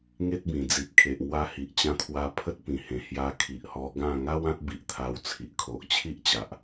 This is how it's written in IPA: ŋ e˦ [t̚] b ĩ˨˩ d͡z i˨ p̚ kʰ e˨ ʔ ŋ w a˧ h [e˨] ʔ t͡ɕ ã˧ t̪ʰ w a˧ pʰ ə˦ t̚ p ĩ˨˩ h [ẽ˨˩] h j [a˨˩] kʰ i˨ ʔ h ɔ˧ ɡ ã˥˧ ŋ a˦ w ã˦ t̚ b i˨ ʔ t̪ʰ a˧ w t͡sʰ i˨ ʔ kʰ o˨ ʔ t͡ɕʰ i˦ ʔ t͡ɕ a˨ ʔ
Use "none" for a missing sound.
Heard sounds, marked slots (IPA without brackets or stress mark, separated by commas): t̚, i˨, ẽ˨˩, a˧